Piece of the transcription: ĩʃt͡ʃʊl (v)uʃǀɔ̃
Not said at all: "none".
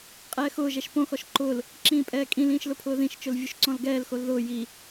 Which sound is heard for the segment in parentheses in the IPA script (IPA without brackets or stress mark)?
vʲ